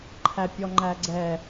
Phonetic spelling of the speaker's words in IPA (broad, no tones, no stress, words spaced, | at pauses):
ǃʰæpʲɔŋ͡ǃæɡ͡ǀɛ